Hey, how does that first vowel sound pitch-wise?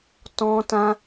high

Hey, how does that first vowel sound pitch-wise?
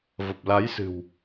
low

